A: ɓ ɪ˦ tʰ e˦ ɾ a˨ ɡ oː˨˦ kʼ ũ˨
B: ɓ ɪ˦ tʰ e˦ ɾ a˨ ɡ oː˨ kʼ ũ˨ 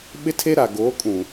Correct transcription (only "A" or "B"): A